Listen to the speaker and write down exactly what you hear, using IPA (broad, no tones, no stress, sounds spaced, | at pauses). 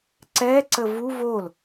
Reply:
ǀ ɛ ǀ ə v u v o l